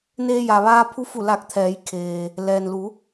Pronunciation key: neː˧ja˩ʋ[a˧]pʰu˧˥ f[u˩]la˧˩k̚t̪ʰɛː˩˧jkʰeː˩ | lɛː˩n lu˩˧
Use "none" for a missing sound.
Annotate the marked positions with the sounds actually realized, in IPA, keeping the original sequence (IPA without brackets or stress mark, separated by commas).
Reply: aː˧, u˧˩